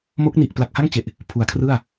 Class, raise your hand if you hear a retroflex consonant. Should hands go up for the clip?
no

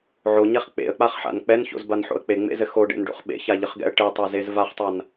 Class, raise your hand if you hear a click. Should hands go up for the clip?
no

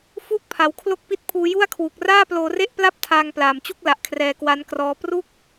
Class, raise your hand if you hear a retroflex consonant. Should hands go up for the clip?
no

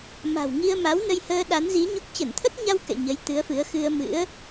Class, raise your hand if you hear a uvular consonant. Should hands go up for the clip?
no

